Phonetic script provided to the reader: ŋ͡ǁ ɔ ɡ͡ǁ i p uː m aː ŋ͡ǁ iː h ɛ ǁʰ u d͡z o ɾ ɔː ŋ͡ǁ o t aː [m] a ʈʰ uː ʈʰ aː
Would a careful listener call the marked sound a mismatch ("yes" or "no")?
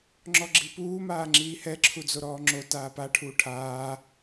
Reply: yes